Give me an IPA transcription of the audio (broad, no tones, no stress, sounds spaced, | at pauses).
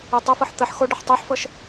e tˤ ə f ɤ ħ t̪ ə ħ x o ɖ ə ħ tˤ e ħ f ɤ ʃ